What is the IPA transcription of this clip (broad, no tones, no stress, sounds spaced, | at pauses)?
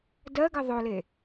d ɜ ɡ ə ðˤ o l e